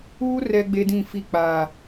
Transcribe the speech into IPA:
uː˦ r ɛ˦ ɡ͡b e˦ d ĩ˦˨ f i˦˨ k͡p aː˨

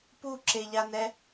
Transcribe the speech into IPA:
p u ǁ e ʎ a n ɛ

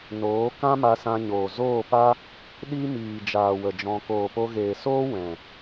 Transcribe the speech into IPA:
n oː˨˦ k ã˦ m a˧ s ã˧ ɲ oː˨ z oː˦˨ p a˦ | ɗ i˦ m iː˨ d͡ʒ aː˨ w ə˨ d͡ʒ ɔ̃˧ k oː˨ p o˧ ɣ eː˨ s oː˦ w ɛ̃˨

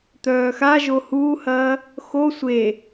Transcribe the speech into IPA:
t̪ œː x a ʒ o h uː h ɐː | x o sʷ e

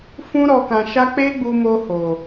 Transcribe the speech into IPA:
f ũ˧ ɾ ɔ˨ k ã˨ ʃ a˧ k͡p e˦ ɡ͡b u˧ m o˧ h o˨

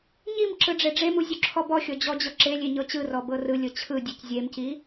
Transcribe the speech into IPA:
ɲ i m ǁ ɯ ɖ͡ʐ e ɖ͡ʐ e m u zʲ u ǁʰ ɔ b ɔ xʲ ɔ d͡ʑ ɔ d͡ʑ ɤ ǁ e lʲ e ɲ ɤ t͡ɕ ɯ r ɔ b ɤ r ɯ lʲ ɤ t͡ɕʰ ɯ dʲ e c zʲ e m c i

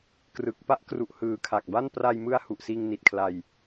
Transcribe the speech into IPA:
k r ɯ˨˩ k̚ p a˥˩ ʔ k r u˨˩ ʔ h ɯː˨˩ kʰ a˨˩ k̚ b a˥˩ n p r a˧ j m ɯ˧ a̯ h u˨˩ ʔ s iː˧ ŋ n i˨˩ t̚ kʰ l a˧ j

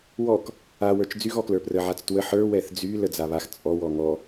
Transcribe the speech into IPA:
w ɔ k | a w ə˞ t͡ʃ d͡z y ɣ ɔ k l ə˞ p r ə ʕ a t͡s t w ə ħ ə˞ w ɛ θ d͡z y l ə d͡z a β a x t͡sʼ ɔ w ɔ ŋ ɔ

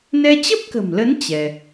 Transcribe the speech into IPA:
n ɛ˧ t͡ɕ ə˦˥ p̚ k ə̤˨˩ m l ə˨˦ n t͡ɕ ɛ˧

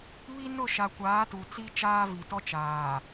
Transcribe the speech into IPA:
β i˦ n ʊ˦˨ ʃ a˨ kʷ aː˨˦ t u˨ t͡s i˦ t͡ʃ aː˦ v i˨ t ɔ˦ t͡ʃ aː˨

